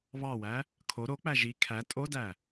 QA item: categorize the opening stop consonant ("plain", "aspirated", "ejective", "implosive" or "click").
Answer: aspirated